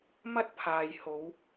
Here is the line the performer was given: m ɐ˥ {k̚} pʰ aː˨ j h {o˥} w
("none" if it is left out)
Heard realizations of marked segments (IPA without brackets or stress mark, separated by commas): t̚, o˨˧